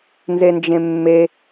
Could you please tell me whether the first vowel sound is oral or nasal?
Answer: oral